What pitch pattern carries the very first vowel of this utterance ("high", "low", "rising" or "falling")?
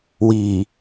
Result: low